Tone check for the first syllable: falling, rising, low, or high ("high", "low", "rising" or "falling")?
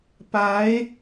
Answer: rising